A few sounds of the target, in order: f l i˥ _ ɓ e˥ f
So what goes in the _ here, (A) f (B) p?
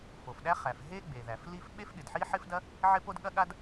A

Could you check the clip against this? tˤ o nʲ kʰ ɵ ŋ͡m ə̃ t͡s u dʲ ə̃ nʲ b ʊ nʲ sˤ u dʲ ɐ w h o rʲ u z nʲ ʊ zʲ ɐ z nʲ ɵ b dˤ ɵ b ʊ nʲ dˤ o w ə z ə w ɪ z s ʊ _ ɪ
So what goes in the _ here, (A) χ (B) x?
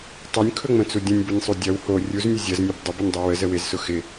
B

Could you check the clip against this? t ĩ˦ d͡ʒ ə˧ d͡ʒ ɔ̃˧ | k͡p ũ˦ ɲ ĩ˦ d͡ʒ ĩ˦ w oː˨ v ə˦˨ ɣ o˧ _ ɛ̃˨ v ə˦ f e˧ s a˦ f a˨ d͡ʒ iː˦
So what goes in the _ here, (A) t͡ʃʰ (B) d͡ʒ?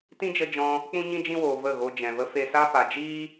B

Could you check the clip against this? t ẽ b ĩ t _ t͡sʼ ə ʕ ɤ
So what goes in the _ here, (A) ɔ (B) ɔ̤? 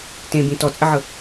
A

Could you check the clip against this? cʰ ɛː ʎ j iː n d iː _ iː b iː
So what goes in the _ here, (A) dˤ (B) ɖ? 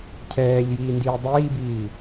A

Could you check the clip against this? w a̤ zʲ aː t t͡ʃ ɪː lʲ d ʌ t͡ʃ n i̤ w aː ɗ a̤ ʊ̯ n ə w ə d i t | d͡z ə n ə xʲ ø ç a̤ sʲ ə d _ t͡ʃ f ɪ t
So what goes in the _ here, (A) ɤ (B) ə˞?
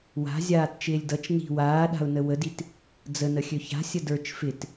B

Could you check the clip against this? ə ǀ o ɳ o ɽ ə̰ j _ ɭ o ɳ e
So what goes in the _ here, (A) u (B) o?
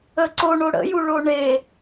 A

